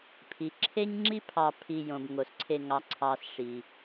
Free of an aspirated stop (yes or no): no